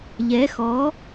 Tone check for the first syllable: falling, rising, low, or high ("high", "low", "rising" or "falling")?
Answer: rising